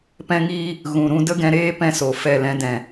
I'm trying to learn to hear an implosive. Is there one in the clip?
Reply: no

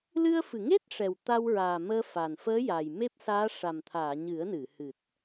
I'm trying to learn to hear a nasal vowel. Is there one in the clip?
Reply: no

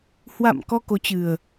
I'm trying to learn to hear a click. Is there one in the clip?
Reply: no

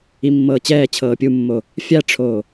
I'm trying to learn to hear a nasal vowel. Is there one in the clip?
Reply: no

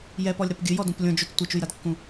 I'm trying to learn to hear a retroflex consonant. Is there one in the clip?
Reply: no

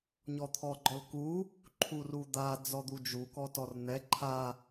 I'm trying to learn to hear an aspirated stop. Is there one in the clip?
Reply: yes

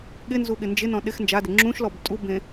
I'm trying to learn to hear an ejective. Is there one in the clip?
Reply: yes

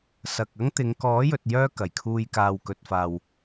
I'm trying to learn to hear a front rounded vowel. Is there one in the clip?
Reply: yes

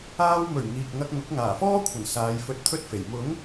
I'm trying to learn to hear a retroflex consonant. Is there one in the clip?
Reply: no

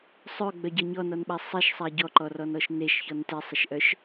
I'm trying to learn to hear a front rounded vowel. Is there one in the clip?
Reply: yes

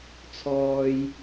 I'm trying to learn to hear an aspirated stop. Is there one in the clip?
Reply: yes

